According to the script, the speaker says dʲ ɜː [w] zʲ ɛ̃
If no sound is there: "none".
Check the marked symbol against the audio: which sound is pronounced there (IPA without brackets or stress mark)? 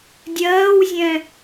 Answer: w